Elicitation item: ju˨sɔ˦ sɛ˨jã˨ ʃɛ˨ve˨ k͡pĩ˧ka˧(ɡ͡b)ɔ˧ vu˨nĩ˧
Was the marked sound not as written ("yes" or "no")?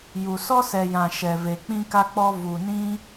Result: yes